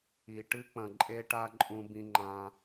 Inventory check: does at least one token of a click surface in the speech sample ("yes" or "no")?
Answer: yes